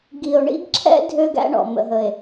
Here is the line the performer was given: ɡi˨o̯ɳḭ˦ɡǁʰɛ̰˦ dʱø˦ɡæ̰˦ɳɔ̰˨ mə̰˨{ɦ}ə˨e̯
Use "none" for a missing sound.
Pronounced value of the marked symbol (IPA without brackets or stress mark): ɦ